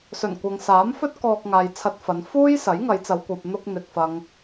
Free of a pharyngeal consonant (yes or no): yes